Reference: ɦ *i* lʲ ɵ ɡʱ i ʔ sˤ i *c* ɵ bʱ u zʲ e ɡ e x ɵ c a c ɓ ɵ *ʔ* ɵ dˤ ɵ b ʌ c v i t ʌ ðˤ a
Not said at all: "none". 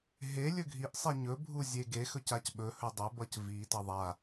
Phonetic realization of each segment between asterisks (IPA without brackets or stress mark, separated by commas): e, ɲ, h